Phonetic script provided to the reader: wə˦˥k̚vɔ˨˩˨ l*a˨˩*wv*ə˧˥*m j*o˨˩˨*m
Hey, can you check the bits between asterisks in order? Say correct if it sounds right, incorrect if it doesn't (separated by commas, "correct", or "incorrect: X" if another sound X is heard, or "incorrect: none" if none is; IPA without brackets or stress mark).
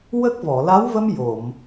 incorrect: a˧˥, incorrect: ə˧, correct